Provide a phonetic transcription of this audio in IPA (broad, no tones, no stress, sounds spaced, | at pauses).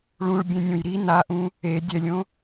ɭ ũ ɭ bʲ ɛ̃ nʲ õ j ɾ i n a ʔ ũ | e dʲ ɛ lʲ õ